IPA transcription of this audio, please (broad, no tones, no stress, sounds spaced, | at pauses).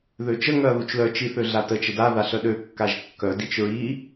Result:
ð ø t͡ʃ ə ŋ œ ɐ̯ ð u t͡ʃ l œ t͡ʃ i θ ø ɮ a t ə t͡ʃ ə d a ð a ɬ œ ɗ ø kː a ʒ kː œ d i t͡ʃ ɹ i